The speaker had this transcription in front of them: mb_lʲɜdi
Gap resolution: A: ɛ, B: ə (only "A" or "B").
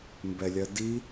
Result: A